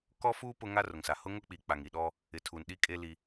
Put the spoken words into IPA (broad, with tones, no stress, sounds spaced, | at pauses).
k ɔ˦ f uː˦ p ʊ˦ ŋ a˦ r ʊ˨ ŋ s a˨ h ʊ˦ ŋ ʊ˦ k͡p i˨ k͡p a˨ ŋ i˨ ɗ ɔ˦ | ɪ˨˦ tʰ uː˨ n ɗ i˦ kʼ eː˦ l i˦